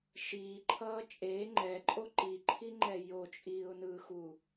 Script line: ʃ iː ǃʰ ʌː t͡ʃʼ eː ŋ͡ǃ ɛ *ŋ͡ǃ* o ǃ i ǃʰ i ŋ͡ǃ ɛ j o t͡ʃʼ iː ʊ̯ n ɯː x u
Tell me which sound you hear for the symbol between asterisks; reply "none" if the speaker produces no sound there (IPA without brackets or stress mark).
ǃʼ